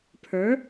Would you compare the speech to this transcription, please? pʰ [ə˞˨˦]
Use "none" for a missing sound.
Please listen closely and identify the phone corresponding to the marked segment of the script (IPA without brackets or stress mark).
ə˞˨˦